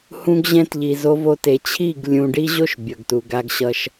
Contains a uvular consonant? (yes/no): no